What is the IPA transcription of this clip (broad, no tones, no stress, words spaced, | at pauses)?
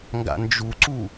ŋɡa̰nd͡ʒuǀu